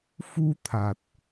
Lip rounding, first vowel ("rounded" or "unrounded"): rounded